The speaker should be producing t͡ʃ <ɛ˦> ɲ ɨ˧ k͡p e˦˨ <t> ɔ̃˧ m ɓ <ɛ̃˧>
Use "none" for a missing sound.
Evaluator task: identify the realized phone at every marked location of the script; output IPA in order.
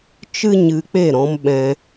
ɨ˦, ɾ, ɛ̃˧

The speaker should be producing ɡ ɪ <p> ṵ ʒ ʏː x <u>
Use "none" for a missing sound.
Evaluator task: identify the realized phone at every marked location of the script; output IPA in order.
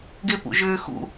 p, ṵ

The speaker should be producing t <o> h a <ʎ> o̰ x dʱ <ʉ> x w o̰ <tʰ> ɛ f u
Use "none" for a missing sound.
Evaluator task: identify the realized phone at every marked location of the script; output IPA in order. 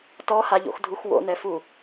ɔ, ʎ, u, n

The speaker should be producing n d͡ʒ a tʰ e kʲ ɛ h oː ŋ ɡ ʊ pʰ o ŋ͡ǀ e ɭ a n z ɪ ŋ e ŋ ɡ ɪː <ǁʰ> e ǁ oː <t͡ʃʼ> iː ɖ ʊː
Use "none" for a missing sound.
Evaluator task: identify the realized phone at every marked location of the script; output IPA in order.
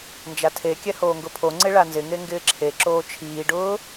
ǁʰ, t͡ʃʰ

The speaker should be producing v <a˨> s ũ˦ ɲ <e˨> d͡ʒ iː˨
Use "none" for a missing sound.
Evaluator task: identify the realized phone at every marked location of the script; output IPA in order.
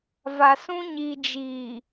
a˨, i˨

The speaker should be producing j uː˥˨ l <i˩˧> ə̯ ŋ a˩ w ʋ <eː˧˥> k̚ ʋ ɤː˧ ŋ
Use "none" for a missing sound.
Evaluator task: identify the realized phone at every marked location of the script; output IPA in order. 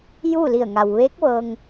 i˧˩, eː˧˥

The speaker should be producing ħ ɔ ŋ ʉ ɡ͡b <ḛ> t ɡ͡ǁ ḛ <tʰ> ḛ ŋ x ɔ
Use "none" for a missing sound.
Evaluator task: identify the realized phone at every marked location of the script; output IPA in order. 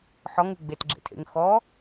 e, tʰ

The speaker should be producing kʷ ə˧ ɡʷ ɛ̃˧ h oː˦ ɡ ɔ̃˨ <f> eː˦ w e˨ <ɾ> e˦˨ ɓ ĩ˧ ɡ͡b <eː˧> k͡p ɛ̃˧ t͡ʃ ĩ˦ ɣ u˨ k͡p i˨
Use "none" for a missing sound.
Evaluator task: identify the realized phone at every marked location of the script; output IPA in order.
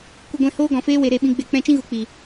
f, ɾ, e˧

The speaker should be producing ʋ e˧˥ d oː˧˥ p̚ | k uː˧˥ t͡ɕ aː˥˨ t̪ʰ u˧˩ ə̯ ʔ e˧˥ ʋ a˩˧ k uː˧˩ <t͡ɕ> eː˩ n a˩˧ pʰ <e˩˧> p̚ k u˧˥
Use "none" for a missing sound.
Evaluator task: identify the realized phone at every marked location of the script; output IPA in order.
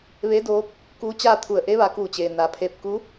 t͡ɕ, e˧

